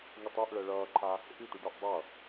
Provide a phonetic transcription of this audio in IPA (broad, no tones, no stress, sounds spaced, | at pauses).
ŋ u tˤ u ʔ ɭ ɛ ɭ ʌː ǃʰ a | ʔ i tʷ e ɖ ʌ ʔ dˤ ʌ